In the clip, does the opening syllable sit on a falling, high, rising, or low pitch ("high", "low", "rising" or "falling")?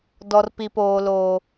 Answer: high